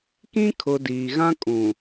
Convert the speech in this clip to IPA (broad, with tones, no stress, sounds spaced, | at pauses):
k ĩ˦ kʰ ʊ˨ d iː˨ ɣ ã˦ kʼ ũ˨